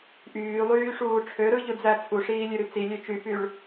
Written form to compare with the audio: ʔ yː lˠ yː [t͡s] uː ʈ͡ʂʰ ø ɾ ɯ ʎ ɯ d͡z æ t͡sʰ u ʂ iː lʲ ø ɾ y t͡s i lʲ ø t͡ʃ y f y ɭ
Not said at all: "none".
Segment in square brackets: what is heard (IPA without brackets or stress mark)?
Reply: ʂ